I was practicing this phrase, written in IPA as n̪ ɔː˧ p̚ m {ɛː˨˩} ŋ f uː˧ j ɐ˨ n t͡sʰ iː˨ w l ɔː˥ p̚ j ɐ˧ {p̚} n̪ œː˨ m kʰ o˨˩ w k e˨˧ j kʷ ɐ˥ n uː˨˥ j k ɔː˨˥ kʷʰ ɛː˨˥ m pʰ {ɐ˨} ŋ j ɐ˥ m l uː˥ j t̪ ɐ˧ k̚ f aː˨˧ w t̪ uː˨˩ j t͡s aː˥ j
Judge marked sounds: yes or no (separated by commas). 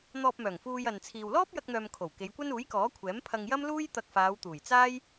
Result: no, no, no